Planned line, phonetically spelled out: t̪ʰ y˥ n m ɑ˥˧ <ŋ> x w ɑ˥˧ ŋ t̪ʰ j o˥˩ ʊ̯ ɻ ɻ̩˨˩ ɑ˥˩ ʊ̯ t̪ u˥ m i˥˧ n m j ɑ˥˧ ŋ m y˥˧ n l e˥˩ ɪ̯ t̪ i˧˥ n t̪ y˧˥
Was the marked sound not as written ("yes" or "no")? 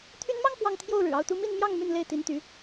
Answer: no